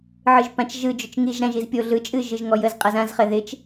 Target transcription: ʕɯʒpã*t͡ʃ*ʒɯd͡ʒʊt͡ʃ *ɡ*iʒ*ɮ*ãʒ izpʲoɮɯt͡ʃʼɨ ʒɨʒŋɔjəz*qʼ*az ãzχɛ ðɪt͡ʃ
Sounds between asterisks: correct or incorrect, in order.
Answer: correct, incorrect: ŋ, incorrect: ɾ, correct

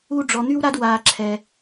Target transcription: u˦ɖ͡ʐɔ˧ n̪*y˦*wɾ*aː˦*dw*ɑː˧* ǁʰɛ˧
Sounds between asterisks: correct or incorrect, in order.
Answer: correct, incorrect: a˦, incorrect: aː˧

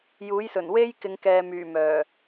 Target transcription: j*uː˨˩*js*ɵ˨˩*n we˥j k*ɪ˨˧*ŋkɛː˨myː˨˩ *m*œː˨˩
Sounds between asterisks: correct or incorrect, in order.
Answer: incorrect: uː˨˥, correct, correct, correct

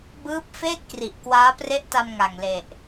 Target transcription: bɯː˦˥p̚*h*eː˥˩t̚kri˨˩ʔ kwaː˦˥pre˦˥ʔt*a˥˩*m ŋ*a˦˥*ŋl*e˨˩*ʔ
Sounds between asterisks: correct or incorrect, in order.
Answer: incorrect: f, incorrect: a˧, incorrect: a˨˩, correct

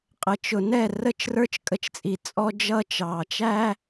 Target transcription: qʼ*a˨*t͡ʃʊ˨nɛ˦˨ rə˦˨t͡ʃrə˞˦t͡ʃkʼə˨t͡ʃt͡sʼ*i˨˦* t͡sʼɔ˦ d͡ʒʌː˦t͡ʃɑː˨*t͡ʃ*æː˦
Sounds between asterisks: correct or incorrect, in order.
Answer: incorrect: ə˨, incorrect: i˨, correct

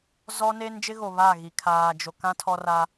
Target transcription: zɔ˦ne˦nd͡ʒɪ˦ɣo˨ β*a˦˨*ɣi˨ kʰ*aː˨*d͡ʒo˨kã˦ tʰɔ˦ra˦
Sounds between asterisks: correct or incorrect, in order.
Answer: correct, correct

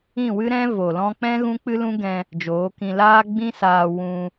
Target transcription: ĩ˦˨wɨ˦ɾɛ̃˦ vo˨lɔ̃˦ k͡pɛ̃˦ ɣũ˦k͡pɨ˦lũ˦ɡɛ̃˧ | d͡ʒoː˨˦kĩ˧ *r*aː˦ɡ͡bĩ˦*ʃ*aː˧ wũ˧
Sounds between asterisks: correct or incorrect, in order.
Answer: incorrect: l, incorrect: s

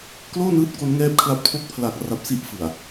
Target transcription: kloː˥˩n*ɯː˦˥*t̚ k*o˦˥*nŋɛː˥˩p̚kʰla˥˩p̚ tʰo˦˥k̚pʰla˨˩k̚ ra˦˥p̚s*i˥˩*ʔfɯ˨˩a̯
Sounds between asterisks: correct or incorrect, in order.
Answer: correct, correct, correct

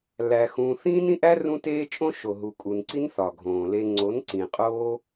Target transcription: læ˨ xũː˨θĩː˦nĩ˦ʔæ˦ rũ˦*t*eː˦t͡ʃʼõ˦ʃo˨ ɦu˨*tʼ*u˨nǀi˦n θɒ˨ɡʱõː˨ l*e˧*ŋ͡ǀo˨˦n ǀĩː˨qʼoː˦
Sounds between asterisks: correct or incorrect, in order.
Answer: correct, incorrect: kʼ, correct

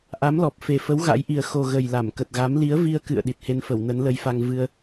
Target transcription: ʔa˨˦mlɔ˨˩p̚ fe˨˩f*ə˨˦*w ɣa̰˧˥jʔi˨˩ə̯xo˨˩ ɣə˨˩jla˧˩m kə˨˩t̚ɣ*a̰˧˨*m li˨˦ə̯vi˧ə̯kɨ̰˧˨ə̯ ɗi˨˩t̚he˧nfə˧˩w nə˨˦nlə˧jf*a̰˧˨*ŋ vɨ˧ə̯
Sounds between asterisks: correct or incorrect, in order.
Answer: correct, incorrect: a˨˦, incorrect: a˧

